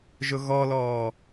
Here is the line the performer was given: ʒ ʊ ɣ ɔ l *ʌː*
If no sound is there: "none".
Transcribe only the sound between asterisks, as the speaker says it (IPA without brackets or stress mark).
ɔː